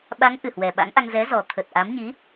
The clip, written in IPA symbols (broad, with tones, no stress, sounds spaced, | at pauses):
ɓ a˨˦ ŋ ʔ ɨ˨˩ h w ɛ˨˩ ɓ a̰˧˥ ŋ ʔ a˧ ŋ z ɛ˨˦ z ɔ˨˩ t̪ʰ ə˨˩ t̚ ʔ a˨˦ m ɲ i˨˦